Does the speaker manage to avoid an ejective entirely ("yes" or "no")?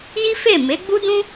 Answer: yes